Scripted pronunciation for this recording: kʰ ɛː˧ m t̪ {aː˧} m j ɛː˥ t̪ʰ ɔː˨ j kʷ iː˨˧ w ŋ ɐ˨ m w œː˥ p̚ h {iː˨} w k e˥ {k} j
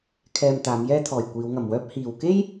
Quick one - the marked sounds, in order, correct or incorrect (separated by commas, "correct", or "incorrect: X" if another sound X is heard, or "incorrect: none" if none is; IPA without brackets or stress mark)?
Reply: incorrect: aː˨˧, correct, incorrect: none